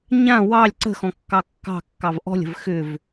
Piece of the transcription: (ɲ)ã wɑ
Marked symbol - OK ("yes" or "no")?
yes